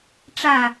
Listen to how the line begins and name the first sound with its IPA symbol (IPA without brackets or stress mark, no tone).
ʈ͡ʂ